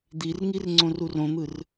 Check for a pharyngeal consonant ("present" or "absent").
absent